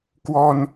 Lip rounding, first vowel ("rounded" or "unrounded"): rounded